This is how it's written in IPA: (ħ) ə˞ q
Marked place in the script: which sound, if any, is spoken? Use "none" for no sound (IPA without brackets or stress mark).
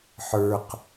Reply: ħ